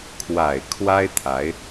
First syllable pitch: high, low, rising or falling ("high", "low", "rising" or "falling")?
low